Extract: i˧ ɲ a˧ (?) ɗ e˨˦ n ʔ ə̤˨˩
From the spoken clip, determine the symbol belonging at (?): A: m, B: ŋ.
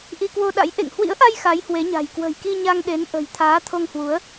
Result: B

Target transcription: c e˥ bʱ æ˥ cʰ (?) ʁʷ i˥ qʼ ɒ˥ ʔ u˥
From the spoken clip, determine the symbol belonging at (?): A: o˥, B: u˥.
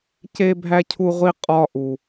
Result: B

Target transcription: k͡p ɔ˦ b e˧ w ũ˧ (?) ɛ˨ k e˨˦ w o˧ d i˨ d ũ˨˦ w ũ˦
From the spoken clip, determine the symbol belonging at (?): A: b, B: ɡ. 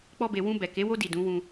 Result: A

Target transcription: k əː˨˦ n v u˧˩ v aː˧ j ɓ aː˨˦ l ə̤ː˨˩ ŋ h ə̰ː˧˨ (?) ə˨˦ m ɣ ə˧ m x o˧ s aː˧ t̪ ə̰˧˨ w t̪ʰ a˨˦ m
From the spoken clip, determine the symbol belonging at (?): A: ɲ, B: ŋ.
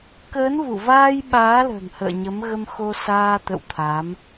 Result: A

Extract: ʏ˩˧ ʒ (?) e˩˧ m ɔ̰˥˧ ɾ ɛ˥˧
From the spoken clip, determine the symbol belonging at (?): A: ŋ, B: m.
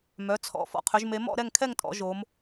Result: B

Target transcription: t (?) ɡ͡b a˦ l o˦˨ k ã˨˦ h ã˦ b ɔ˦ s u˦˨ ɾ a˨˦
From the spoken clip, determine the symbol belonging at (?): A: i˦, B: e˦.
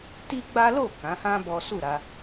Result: A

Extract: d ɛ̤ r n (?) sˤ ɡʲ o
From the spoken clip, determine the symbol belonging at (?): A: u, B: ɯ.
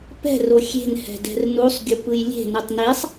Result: A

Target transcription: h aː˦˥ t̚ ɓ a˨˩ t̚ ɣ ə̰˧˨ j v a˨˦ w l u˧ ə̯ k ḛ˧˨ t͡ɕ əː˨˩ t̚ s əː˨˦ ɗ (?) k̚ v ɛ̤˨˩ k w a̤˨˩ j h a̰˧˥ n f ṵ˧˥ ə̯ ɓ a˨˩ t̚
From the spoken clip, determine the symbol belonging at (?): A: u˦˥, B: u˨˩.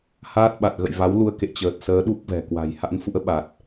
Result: A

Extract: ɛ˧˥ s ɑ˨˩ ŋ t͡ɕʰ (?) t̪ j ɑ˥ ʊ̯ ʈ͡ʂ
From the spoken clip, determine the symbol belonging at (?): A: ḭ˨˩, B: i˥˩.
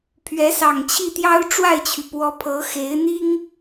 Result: B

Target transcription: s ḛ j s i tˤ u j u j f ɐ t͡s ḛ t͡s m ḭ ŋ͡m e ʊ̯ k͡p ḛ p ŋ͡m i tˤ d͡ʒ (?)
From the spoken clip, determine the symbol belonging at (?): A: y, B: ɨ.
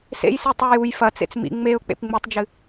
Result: B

